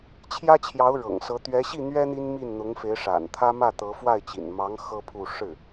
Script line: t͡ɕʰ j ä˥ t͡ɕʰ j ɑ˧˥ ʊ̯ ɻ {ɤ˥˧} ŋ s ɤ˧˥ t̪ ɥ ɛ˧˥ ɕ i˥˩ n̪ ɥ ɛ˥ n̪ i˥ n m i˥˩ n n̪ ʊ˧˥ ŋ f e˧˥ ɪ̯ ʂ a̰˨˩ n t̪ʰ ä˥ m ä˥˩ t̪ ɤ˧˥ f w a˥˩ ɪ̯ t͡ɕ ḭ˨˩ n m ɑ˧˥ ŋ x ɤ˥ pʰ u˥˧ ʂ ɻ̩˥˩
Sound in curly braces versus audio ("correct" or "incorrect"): incorrect